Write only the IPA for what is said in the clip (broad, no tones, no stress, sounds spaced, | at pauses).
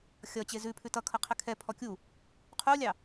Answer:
xʲ ʌ t͡ɕ e z ʉ pʰ ʉ t ʌ kʰ ʌ qʰ ɪ kʰ ɛ pʰ ɔ kʲ u | qʰ u lʲ ɑ